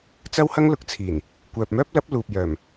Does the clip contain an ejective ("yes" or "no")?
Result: no